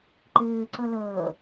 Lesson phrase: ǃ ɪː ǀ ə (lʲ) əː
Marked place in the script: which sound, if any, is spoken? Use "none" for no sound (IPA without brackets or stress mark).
l